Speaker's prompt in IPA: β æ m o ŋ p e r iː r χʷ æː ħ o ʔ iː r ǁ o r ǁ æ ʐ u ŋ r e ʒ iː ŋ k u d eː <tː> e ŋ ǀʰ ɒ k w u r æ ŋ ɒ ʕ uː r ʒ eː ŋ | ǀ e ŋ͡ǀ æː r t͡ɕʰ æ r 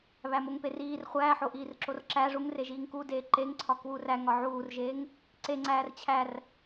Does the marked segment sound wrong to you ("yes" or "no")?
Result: yes